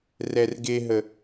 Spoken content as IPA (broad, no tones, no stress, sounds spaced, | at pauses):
r ɛ r ɡ e ɦ ə